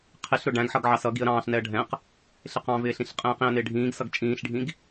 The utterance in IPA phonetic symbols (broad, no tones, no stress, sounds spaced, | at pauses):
qʰ ɪ ɬ ɾ ʊ ɖ æ̃ ɡ ħ ʌ ɡ ʕ ɑ s ʌ ɡ i ə̯ ɾ ɑ̃ː ɬ n ɛ ə̯ ɖʱ ɛ̃ q | ɬ ɪ q ɑ̃ v ɪː ɬ ĩ ɬ qʼ ɛ̃ː q ĩ ə̯ n ɪː ɖʱ ĩː ɡ s ʌ ɡ t͡ʃʼ ĩː ɬ ɖʱ ĩ ɡ